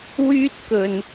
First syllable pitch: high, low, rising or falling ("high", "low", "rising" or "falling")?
high